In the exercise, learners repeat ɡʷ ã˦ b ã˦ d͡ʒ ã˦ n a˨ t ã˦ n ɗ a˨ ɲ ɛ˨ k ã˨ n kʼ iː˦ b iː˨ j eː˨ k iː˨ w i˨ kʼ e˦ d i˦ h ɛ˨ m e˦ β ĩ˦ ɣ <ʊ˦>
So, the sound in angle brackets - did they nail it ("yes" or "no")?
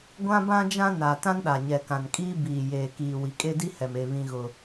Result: yes